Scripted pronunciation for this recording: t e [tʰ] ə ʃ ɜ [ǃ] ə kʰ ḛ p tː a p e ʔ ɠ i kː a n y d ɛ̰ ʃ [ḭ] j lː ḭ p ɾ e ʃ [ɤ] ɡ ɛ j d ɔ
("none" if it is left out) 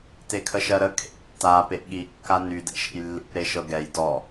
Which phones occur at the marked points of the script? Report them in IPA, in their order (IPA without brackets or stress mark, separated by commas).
kʰ, ɾ, ḛ, ɤ